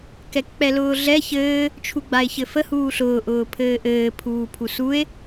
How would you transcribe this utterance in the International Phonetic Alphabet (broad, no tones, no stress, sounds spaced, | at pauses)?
k ɛ k k͡p ɛ l ʊː ɮ ɛ ç ɘː | t͡ʃʰ u ɡ͡b a e̯ ç ɘ f ə h uː ɬ ʊː ʔ ʊː pʰ ɘː ʔ ɘː pʰ uː pʰ u s u e̯